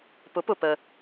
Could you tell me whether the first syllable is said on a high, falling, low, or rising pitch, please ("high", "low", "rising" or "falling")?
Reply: rising